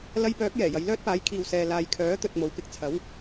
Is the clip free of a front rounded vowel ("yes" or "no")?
no